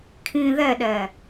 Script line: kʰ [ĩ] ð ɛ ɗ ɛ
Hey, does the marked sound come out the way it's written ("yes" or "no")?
yes